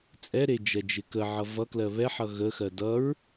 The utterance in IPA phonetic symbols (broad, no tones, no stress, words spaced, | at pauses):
t͡sʼɛɾe d͡ʒɛd͡ʒɪkəʕʌ vʌklɜ βɛħʌ ɣəxɜ dʌɹ